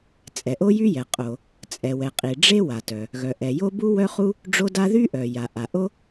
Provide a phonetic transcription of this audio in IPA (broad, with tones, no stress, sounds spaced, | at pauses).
t͡sʼ ɛ˩ ʔ o˥ j y˥ j ɛ˩ qʼ o˩ | t͡sʼ ɛ˩ w ɛ˩ qʼ i˩ ɖ͡ʐ e˥ w a˩ t œ˩ | ɣ œ˩ ʔ ɛ˩ j o˥ b u˥ w œ˥ χ u˥ | ɖ͡ʐ o˥ d a˥ ð y˥ ʔ œ˩ j a˩ ʔ a˩ ʔ o˥